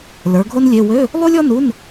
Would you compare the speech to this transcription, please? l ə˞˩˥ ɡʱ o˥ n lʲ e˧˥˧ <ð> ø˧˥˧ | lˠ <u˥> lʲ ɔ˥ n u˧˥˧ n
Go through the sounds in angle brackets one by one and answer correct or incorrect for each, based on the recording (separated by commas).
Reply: incorrect, correct